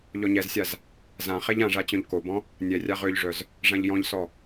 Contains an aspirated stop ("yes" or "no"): no